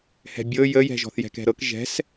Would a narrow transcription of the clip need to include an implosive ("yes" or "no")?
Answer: no